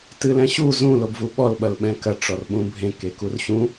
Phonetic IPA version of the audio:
tɨlɛ̃ɕu zũ lobvuɓɔl ɓɐlɓɛ̃kɐ ʈ͡ʂɔrɓũbʱẽ kekurɕũ

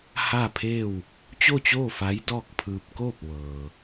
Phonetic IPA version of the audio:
ha˥˨pʰeː˥˨w | t͡ɕo˥˨t͡ɕoː˥˨fa˧˥j dɔː˥˨k̚pʰɯː˧p̚ koː˥˨p̚ʋɤː˩

